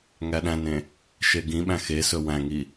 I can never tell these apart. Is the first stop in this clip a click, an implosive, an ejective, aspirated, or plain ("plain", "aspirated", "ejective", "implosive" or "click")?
implosive